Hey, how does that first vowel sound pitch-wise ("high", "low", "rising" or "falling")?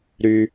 low